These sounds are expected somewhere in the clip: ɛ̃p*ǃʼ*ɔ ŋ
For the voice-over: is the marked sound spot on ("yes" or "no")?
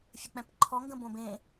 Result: no